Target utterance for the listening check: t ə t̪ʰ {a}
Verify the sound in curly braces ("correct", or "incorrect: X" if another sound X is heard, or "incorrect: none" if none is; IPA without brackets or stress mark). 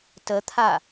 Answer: correct